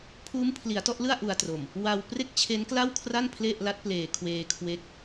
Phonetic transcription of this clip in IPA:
pʰ uː˦˥ m pʰ l i˩˦ a̯ t ɔ˥˩ ʔ l ɯ˥˩ a̯ ʔ u˧ a̯ t r o˨˩ m | w a˧ w p r e˥˩ k̚ t͡ɕʰ e˦˥ n k l a˥˩ w kʰ r a˥˩ n pʰ l e˥˩ ʔ l a˦˥ t̚ p l eː˨˩ kʰ w eː˧ kʰ w e˦˥ k̚

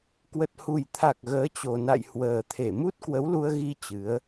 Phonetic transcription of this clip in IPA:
k w ə˨˩ t̚ h u˨˩ j t̪ʰ a˨˩ k̚ ɣ əː˨˦ t͡ɕ o˨˩ n a̰˧˨ j h w əː˨˩ t̪ʰ e˧˩ m u˦˥ t̚ k w ə˨˦ w l u˧ ə̯ ɣ i˧ t͡ɕ ɨ˨˦ ə̯

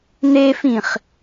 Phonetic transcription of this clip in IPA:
n e f ĩ χ

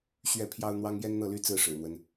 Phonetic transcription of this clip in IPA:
ɕ ɥ ɛ˥˩ pʰ j ɑ˥ ʊ̯ n̪ w ɑ˥ ŋ j ɛ˥ n n̪ ɤ˥˩ l y˥ t͡s ɹ̩˥˩ ʂ ɻ̩˨˩ n̪ w ə˦ n

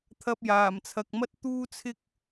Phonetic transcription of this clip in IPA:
t̪ʰ ɐ˧ p̚ j aː˨˩ m t͡sʰ ɐ˨ k̚ m ɐ˥ t̚ t̪ uː˥ t͡sʰ ɪ˥ k̚

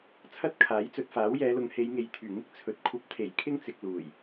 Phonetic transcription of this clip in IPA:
t͡sʰ ɐ˥ t̚ kʰ aː˨˥ j t͡s ɵ˨ t̚ f aː˨˥ w j ɛː˨˧ l ʊ˨˧ ŋ h e˨˧ j ŋ e˨ j t̪ʰ yː˨˩ ŋ ɪ˥ k̚ t͡sʰ ɵ˨˥ t̚ kʷʰ ɐ˧ p̚ t̪ʰ e˨˩ j kʰ ɪ˥ ŋ t͡s ɪ˨ k̚ l uː˨˩ j

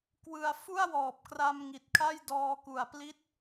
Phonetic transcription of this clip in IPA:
k w ɯ˧ a̯ f u˥˩ a̯ w ɔː˨˩ p̚ k r a˧ m ŋ i˨˩ t̚ kʰ a˥˩ j d ɔː˧ k u˨˩ a̯ p l i˦˥ t̚

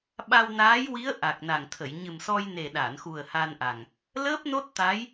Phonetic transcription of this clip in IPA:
ɓ a˧ w n aː˧˥ j w i˧˥ ə̯ ʔ a˨˩ k̚ n a˨˩ ŋ t̪ʰ ə˨˩˨ j ɲ ɨ˨˩ m s ɔ˧ j n e˨˩ ɗ a˨˩˨ n x u˨˩ ə̯ h a˧ n ʔ a˨˩ ŋ | l əː˦˥ p̚ n o˦˥ t̚ t̪ a˧˥ j

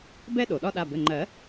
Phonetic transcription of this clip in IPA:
b ɛ˥ ɗ o˩ ɗ ɒ˥ ɗ a˩˧˩ b ɘ˩˧˩ ŋ͡ǃ ɜ˨˩˦

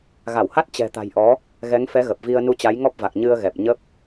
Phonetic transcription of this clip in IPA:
ɣ a˧˩ w h a˦˥ t̚ t͡ɕ ɛ̤˨˩ t̪ a̤˨˩ j ʔ ɔ˨˦ | ɣ ɛ˨˦ ŋ f ɛ˨˦ ɣ ə˨˩ p̚ v i˧ ə̯ n u˧ t͡ɕ a˨˦ j ŋ ɔ˦˥ p̚ v a˨˩ k̚ ɲ ɨ˧ ə̯ ɣ ɛ˨˩ p̚ ɲ ə˦˥ p̚

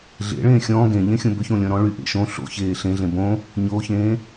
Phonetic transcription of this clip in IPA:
ɮ ḛ ɭ ẽː xʲ ɔ̃ː ɡ ẽ ʎ ẽ xʲ õ b ʏ ç õ lʲ ɔ̃ ɾ ɔ̃ ɭ y ʔ ḛ ʃ õ ɬ o̰ ç eː ɬ ẽ ɮ ẽ b õ | ɲ o ç ẽː

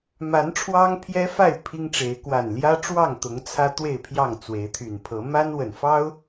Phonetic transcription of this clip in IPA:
m a˨˦ n ʈ͡ʂʰ w ɑ˦ ŋ pʰ j ɛ˦ f a˥˨ ɪ̯ pʰ i˦ ŋ ʈ͡ʂ e˨˦ ɪ̯ k w a˨˩ n l j ä˦ ʈ͡ʂ w ɑ˥˨ ŋ t̪ ʊ˨˦ ŋ t͡sʰ ä˦ t̪ w e˥˨ ɪ̯ pʰ j ɑ˥˨ ŋ t͡s w e˨˦ ɪ̯ t̪ʰ y˨˩ n pʰ ɤ˨˦ m a˦ n w ə˨˩ n f ɑ˦ ʊ̯

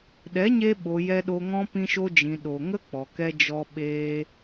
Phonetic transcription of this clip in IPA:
ɗ ɛ˨˦ ɲ e˧ ɓ o˨ j ɛ˧ ɗ o˧ ŋ ɔ̃˦ p ĩ˧ ʃ o˧ d͡ʒ ĩ˨ ɗ o˨ ŋ ə˦ k͡p ɔ˨ k ɛ˧ d͡ʒ ɔ˧ ɓ eː˧

